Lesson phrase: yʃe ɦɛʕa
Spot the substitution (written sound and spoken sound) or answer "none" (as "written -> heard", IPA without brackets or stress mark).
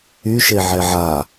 ɦ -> ʕ